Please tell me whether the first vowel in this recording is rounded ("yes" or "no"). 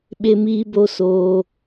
no